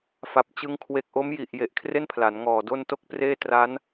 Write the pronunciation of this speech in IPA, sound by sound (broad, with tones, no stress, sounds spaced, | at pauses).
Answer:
f a˨˩ p̚ t͡ɕ ɯ˦˥ ŋ kʰ w e˨˩ k̚ ʔ o˦˥ m j i˨˩ ʔ j e˨˩ ʔ kʰ r e˥˩ n pʰ l a˩˦ n ŋ ɔː˨˩ d o˥˩ n t o˦˥ k̚ p r eː˥˩ t r a˦˥ n